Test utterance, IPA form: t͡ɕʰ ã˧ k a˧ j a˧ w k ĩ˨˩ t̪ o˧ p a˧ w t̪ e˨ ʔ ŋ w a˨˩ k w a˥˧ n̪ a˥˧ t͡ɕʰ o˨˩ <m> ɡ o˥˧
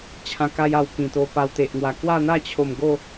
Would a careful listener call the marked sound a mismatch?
no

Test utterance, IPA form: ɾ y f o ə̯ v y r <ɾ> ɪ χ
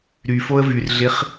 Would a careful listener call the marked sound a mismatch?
yes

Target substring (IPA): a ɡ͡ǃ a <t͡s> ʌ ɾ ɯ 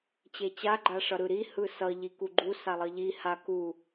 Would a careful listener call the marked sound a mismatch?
yes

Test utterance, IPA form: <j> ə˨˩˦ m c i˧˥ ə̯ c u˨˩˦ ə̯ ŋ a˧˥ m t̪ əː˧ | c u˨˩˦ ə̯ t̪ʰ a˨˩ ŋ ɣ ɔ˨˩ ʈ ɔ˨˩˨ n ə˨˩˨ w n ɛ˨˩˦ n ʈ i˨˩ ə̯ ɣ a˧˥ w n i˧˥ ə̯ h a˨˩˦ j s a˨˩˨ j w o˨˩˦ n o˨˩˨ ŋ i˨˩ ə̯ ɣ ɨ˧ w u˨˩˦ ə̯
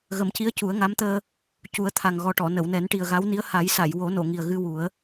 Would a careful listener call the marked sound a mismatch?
yes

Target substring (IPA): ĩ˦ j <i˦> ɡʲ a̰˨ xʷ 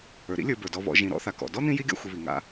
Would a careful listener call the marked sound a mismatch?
no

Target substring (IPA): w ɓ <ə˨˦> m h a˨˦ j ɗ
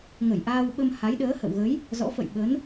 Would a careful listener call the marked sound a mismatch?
yes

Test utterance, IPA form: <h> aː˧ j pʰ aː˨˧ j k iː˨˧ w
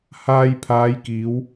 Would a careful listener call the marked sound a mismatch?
no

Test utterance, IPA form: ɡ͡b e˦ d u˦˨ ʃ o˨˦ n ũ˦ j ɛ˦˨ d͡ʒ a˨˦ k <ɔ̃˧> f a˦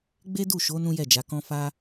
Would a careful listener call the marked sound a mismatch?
yes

